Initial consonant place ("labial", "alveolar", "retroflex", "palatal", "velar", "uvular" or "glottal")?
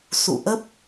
alveolar